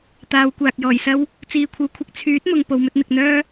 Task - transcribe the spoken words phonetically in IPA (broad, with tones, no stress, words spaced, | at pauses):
t̪aː˨˧wkʷaː˨k̚jɔː˨˩jsɐ˥w | t͡siː˨kʷʰɐ˨˧w kʷʰɪ˧k̚ t͡sʰyː˨˥t̚mʊ˨ŋ po˨wmɵ˧t̚n̪ɪ˨k̚n̪œː˥